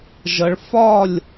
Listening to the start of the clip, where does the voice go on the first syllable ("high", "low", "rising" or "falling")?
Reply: low